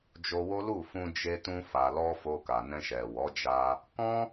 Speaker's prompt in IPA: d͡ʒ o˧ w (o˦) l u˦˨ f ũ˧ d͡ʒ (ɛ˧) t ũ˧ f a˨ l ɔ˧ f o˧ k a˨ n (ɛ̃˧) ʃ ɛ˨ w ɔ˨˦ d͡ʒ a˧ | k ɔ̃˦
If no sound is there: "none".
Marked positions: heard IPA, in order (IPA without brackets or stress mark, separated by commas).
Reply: o˦, e˧, ɛ̃˧